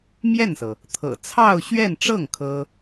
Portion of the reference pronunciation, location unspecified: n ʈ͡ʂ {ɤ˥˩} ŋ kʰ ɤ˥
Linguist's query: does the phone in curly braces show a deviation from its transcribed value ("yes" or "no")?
no